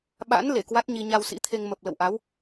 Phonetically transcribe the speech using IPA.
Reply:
ɓ a̰˧˥ n l e˧˩ k w a˦˥ t̚ ɲ i˧ ɲ a˧ w s ḭ˧˥ t̪ʰ e˧ ŋ m ə˨˩ p̚ l ə̰˧˨ w ʔ a˨˦ w

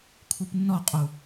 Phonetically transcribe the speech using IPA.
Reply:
kʷʰ ɨ p nː ɔ qʼ u

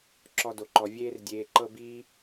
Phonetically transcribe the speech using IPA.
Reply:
ǁ ɔ˦ d o˧ ǃ ɔ˧ vʲ eː˦ r dʲ eː˧ ǃ ɤ˦ b iː˦

